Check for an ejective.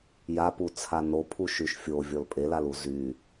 present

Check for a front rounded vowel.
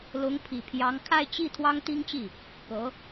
absent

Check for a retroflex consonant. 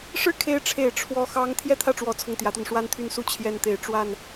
present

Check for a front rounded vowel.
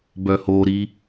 present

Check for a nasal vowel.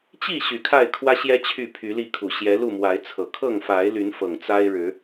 absent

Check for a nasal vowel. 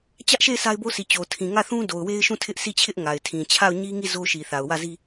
present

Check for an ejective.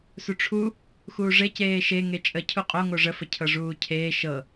present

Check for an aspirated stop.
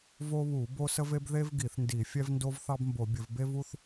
absent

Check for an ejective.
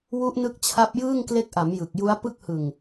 absent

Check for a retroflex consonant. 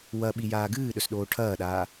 present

